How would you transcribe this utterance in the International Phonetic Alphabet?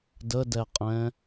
d ə d ɛ qʼ ɛ̃

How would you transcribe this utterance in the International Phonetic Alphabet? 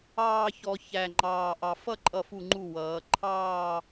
ɑː˥˧ ç ɔ˧ ç æ˧˩ ŋ͡ǃ ɑː˧˩ ʔ ɑ˧ f ʌ˥˧ ǃʼ ʌ˧˩ f u˧˩ ŋ͡ǃ u˧˩ w ʌː˩˧ ǃʰ ɑː˥˧

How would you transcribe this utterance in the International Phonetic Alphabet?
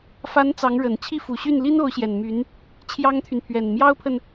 f a˧˥ n t͡s ɑ˧˥ ŋ ɻ ə˨˩ n t͡ɕʰ i˥˩ f u˨˩ ɕ y˥˩ n l i˥ n o˧˥ ʊ̯ ɕ j ɛ˨˩ n m y˧˥ n | t͡ɕʰ j ɑ˥ ŋ t̪ʰ y˨ n pʰ ɥ ɛ˨˩ n m j ɑ˥ ʊ̯ pʰ ə˨ n

